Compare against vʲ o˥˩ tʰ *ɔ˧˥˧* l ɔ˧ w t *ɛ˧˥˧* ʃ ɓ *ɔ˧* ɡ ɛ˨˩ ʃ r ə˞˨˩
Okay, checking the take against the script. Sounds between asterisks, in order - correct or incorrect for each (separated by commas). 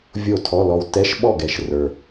correct, correct, incorrect